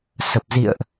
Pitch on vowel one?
low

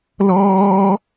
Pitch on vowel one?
high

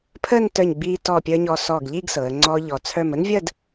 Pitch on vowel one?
falling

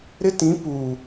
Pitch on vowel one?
high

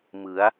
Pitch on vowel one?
rising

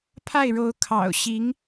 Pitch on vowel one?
falling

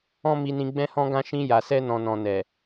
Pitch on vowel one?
high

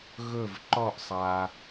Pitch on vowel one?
falling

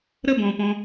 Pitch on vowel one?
high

